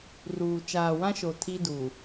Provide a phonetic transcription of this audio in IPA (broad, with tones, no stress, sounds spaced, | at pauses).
r uː˨ t͡ʃ aː˨ w ã˦ ʃ o˨ tʰ i˦ d u˨